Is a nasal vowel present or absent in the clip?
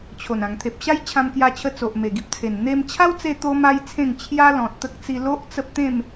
present